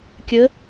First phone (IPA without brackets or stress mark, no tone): kʲ